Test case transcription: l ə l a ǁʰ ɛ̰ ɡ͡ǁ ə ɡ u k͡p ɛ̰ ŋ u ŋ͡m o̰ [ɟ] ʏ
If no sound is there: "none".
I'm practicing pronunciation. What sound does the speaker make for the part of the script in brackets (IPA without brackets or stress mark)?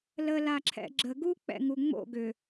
ɡ